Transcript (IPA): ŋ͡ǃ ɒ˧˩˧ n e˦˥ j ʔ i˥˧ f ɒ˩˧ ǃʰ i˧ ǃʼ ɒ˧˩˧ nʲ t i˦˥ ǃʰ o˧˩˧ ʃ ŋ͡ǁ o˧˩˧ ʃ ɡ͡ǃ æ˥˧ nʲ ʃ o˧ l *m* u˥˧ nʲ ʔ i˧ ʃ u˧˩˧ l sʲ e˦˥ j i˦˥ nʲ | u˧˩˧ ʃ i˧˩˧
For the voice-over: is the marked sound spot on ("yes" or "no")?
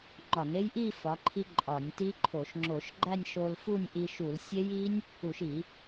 no